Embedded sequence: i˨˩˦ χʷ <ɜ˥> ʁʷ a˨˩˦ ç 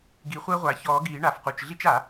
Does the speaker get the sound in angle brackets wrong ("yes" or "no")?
no